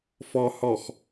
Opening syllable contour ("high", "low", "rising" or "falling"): low